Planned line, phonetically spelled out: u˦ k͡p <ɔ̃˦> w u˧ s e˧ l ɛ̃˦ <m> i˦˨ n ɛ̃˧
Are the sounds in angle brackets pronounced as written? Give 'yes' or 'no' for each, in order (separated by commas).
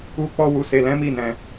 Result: no, yes